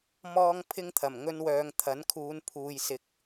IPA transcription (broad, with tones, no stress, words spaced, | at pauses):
mɔː˥ŋ pʰɪ˥ŋt̪ʰɐ˨˩m ŋɵ˥nwœː˧ŋ t̪ʰɐ˨˥nkʰuː˨˧n pʰuː˨jsɪ˨˥k̚